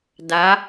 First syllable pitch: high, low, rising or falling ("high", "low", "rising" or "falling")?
rising